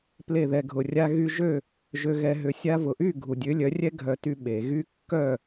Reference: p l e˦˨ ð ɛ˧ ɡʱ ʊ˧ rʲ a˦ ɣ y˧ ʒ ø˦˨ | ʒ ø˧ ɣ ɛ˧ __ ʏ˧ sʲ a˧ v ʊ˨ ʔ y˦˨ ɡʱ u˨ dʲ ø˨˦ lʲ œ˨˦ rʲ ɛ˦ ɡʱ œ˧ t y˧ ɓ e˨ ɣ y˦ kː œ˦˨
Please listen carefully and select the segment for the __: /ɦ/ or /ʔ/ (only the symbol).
ɦ